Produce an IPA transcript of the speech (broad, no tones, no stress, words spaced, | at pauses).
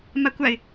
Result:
makʷaɪ̯